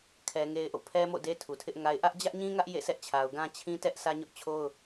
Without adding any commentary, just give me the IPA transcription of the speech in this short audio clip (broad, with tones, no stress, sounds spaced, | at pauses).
kʰ ɛ˦ ŋ e˦ ɪ̯ ʔ o̰˦˨ pʰ ɛ˦ m o̰˦˨ d e˦ tʰ u˨ tʰ ɪ˦ ʔ ŋ a˦ ɪ̯ ʔ ä˦ ʔ d͡ʑ ä˦ ʔ ɲ ĩ˦ ŋ ä˦ ʔ j ḛ˦˨ sʰ ɛ˦ ʔ t͡ɕʰ a˨ ʊ̯ ɡ ã˦ t͡ɕʰ ĩ˦ t ɛ˦ ʔ sʰ ä˦ ɲ ʊ˦ ʔ t͡ɕʰ o˦ ʊ̯